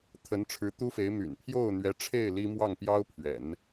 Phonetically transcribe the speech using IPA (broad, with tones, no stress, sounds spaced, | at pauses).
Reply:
t̪ʰ ə˧˥ n ʈ͡ʂʰ ɻ̩˧˥ t̪ u˥ f e˧˥ ɪ̯ m y̰˨˩ n pʰ j o˥˩ ʊ̯ n̪ ɥ ɛ˧˥ ʈ͡ʂʰ e˥˩ ɪ̯ l i˥ m w ɑ˥˩ ŋ p j ɑ˥ ʊ̯ pʰ ɥ ɛ̰˨˩˦ n